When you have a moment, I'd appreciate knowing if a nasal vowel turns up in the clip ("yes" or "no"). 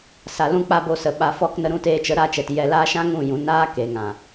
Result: yes